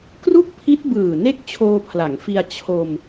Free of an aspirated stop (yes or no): no